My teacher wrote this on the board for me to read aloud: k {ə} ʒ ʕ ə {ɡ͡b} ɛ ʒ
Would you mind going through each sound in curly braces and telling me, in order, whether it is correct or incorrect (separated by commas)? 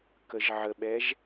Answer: correct, incorrect